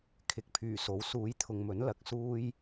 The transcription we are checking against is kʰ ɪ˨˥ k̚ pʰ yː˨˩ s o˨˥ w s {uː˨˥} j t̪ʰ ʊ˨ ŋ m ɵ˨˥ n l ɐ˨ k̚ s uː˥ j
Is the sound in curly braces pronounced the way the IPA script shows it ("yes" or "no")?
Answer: yes